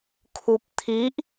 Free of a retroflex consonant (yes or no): yes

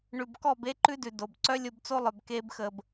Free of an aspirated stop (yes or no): yes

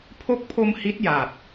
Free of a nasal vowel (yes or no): yes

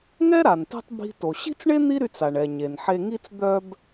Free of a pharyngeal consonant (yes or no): no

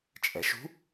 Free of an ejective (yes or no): no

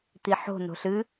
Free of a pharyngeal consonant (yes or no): no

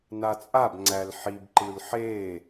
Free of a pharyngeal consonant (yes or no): no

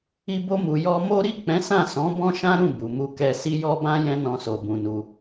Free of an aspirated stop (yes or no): yes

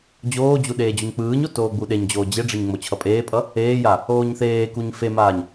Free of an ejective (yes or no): no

